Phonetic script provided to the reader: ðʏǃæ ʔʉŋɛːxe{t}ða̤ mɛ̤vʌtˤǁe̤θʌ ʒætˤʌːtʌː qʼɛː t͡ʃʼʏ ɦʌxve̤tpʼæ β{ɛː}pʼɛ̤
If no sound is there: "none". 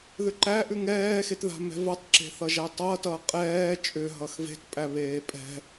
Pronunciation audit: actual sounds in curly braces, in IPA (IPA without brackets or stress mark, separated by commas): t, eː